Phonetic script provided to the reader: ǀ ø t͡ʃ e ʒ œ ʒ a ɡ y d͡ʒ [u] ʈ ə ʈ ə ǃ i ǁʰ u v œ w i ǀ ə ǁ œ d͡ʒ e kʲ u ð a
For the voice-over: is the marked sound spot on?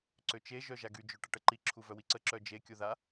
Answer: no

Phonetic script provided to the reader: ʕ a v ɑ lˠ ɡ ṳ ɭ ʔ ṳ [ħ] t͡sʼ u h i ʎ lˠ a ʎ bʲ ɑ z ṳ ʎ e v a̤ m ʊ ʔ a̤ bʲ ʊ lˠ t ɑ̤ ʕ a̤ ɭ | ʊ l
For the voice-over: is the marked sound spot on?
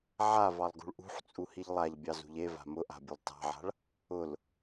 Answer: yes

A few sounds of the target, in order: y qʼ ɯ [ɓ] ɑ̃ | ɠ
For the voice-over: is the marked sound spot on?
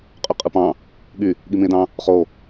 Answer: no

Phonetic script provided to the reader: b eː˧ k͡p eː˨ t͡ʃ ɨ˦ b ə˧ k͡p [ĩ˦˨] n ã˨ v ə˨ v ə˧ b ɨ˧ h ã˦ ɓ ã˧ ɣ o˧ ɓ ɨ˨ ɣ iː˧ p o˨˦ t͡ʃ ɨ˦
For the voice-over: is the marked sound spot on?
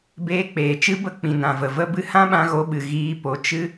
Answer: no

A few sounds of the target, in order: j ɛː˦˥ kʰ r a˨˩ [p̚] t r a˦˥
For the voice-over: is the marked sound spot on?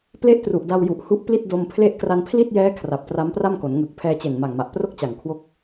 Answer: yes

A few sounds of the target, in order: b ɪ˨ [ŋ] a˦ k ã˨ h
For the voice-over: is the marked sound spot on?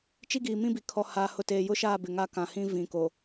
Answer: yes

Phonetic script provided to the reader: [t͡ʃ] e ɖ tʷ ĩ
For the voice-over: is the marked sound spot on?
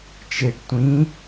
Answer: yes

